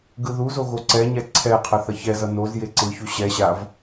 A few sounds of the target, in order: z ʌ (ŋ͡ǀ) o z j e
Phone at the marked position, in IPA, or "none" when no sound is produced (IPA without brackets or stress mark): n